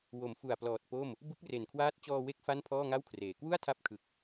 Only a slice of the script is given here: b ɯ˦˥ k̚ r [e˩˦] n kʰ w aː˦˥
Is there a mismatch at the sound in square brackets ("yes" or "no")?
yes